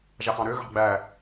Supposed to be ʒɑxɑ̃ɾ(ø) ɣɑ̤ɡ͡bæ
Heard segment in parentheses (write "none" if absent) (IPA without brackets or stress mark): ø